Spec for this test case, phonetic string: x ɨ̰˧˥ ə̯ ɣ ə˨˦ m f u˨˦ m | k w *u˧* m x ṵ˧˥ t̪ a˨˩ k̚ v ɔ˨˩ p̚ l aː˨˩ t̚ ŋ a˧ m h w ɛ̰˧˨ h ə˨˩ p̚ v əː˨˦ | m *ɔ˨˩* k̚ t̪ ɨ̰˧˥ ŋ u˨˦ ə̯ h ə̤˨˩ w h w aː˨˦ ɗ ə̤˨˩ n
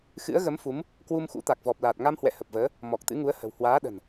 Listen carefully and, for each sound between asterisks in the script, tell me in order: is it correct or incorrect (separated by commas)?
correct, correct